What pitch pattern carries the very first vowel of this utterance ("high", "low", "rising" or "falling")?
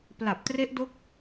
low